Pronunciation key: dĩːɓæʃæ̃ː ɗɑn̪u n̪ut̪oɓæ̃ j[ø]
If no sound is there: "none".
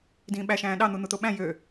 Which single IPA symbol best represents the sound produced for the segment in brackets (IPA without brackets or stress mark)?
ø